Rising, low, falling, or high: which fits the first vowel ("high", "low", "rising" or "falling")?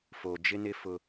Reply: low